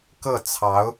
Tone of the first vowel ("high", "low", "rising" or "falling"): falling